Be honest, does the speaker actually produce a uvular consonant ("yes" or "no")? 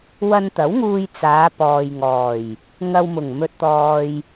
no